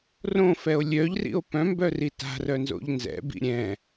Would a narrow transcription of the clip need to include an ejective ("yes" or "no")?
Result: no